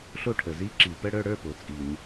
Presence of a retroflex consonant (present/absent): present